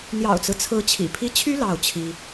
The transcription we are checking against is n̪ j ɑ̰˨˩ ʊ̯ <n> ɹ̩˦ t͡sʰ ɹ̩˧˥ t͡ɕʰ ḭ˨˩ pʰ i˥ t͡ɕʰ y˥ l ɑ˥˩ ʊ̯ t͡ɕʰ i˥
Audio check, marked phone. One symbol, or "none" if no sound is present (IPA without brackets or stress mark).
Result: t͡s